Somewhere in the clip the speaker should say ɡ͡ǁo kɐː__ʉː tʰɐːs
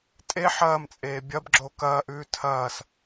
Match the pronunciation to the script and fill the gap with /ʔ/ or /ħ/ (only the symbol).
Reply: ʔ